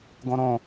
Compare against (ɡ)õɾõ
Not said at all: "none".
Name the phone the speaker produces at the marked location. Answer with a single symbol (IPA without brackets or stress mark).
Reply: ɡ